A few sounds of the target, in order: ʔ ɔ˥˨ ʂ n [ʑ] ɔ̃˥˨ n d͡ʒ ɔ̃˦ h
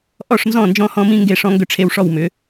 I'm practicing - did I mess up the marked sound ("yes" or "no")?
yes